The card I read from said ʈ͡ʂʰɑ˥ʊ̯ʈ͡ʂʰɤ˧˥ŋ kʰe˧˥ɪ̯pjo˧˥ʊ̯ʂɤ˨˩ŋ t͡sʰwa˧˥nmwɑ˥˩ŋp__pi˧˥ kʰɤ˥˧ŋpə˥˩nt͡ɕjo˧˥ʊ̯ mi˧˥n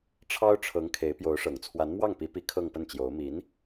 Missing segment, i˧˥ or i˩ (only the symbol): i˧˥